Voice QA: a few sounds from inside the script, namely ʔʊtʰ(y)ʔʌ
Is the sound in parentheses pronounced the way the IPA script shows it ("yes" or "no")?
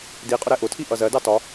no